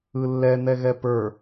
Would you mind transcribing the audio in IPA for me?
ɯ lː ɛ n̪ ɛ ɣ ɛ p ə˞

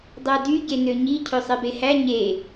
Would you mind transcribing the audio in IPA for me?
dˤ æ d y ɟ e n ø ɲ i cʰ ø sˤ e b e h æ ɲ e

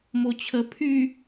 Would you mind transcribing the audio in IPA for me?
m o t͡ɕʰ ə pʰ y

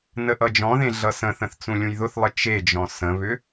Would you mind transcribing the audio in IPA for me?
n ə ʔ ʌ d͡ʒ ɔ̃ ð ẽ ɮ ʌ s ə̃ θ ə̃ θ t͡s ũ lʲ ũ j ð ʊ θ lˠ ə t͡ʃ e d͡ʒ ɔ̃ s ə̃ β ʏ

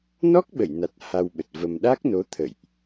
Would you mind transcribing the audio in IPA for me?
n ɔ˦˥ k̚ ɓ ə˧˩ j n a˨˩ t̚ h a˧ w ɓ ə˨˩ t̚ v ə˧ m ɗ a˦˥ k̚ n o˨˦ t̪ʰ ə̰˧˨ j ʔ

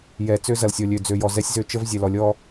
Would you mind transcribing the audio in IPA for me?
j ɛ˨ t͡s ø˦ z ɐ˨ l sʲ ɔ˨ lʲ ø˨ d͡z ø˨ j ɔ˨ z ɛ˦ sʲ z ø˦ t͡ʃ ə˦ v zʲ ɛ˨ l ɔ˨ lʲ ɔ˦

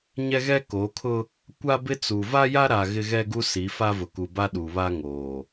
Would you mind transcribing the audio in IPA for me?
ɲ ɛ˦ ɣ ɛ˦ k oː˨˦ kʰ ʊ˦ | kʷ a˦ b ɪ˦ t͡s u˨ v a˦ j a˦ ɾ a˨ ɣ ɪ˦ ɣ ɛ˦ ɡ u˦ s i˨˦ f a˦ v ʊ˨ k u˨ b a˦ ɗ u˨ β a˦ ŋ oː˨

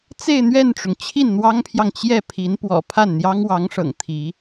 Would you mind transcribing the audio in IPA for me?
t͡s e˥˧ ɪ̯ n̪ ɥ ɛ˥˩ n ʈ͡ʂ ʊ˩ ŋ t͡ɕʰ i˥˩ n n̪ w ɑ˥ ŋ pʰ j ɑ˨ ŋ t͡ɕ j ɛ˥˩ pʰ i˧˥ n p w ɔ̰˨˩ pʰ a˥˩ n n̪ j ɑ˥ ŋ w ɑ˧˥ ŋ ʂ ɤ̰˨˩ ŋ t̪ʰ i˧˥

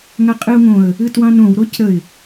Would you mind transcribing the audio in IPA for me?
ŋ a qʼ ɨ ʊ̯ ŋ õ ə̯ | ɨ t w ɑ̃ n õ w ɾ o c ɾ ə ɪ̯

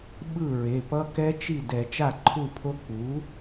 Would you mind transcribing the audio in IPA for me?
ɓ ɯ˥˩ ɹ e˩˧˩ p ʌ˦˥ k ɛ˦˥ t͡ʃ i˥˩ d ɛ˧˩˧ t͡ʃ a˥˩ ǃʰ u˥˩ pʰ o˦˥ k͡p u˩˥

